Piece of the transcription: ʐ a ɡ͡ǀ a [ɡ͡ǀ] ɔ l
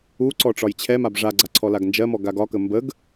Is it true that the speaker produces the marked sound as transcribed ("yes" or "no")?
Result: no